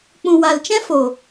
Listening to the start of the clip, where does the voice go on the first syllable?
low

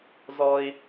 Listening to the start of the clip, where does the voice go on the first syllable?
high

